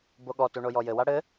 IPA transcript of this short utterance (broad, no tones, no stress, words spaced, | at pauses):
boɠɔtu ɳojɔjɘwa ɽɘ